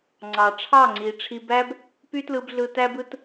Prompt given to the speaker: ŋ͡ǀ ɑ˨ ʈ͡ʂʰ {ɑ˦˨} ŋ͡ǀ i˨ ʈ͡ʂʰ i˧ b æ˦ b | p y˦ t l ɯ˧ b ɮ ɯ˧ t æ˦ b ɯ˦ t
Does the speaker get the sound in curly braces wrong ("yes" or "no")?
no